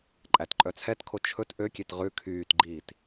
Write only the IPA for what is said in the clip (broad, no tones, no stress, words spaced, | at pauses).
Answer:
ǃʼætǃʼœt͡sʰɛtkʰo t͡ʃʰɵt ʔøkʲet ʁʉ kʰyːtɡ͡ǃiːt